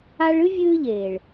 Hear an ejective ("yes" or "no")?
no